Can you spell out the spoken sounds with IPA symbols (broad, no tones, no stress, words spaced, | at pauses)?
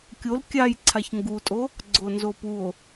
kʲol kʲaj ǀʰaçŋɡutʼo | ɡ͡ǀonzopuo̯